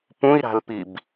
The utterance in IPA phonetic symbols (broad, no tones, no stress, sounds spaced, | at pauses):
p ũ i̯ ɾ a̤ l p i b